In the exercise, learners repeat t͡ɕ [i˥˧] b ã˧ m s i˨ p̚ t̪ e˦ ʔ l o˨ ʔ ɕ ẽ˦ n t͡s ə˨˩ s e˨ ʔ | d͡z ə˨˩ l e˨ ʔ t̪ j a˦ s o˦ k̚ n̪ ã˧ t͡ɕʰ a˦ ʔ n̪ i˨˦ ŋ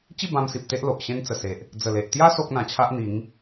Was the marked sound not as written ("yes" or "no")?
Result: no